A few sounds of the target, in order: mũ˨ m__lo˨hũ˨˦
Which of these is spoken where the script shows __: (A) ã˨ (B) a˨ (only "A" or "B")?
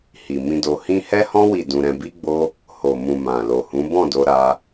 A